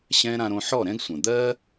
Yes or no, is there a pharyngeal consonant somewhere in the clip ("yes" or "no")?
yes